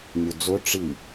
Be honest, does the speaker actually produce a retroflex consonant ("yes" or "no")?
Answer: yes